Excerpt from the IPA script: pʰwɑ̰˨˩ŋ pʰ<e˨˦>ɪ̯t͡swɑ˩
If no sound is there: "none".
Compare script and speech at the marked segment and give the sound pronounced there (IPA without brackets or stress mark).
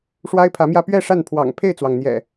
e˥˨